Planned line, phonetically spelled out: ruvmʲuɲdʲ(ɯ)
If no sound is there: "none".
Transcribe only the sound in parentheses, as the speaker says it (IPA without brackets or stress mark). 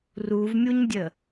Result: ə